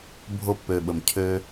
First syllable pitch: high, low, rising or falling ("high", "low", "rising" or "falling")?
low